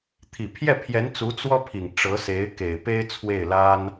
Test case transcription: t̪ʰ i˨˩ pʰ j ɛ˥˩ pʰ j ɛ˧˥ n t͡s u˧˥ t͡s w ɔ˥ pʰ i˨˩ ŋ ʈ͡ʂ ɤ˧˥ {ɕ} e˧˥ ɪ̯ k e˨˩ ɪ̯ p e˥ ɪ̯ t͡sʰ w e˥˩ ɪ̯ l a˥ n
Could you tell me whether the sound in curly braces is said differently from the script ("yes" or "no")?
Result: yes